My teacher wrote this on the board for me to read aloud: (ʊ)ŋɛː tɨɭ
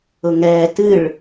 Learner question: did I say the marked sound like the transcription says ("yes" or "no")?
yes